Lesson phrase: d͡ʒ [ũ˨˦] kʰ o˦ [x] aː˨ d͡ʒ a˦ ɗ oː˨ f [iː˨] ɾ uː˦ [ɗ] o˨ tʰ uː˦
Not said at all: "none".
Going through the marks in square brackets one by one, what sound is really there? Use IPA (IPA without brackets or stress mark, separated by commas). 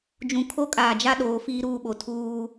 ũ˨, kʼ, iː˦, ɓ